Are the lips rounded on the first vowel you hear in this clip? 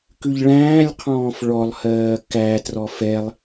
yes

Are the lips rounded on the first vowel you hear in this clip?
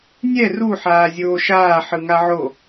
no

